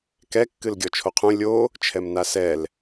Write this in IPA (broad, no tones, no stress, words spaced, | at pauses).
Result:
kɛ kːɨlɡʲɔt͡ʃʰoqʰũ lʲo | t͡ʃʰɛmnasɛl